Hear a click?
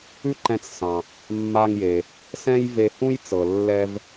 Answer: yes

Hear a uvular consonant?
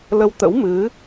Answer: no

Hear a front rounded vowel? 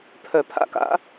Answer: yes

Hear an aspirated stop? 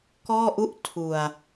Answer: yes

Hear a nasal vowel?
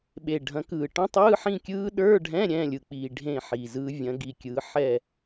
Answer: yes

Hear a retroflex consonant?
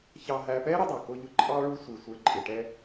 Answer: yes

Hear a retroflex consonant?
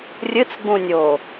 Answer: no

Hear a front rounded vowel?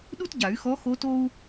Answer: yes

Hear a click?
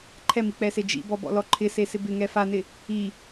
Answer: yes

